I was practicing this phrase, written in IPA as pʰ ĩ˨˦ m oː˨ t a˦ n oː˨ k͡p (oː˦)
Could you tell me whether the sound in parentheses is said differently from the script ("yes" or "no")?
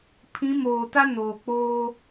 no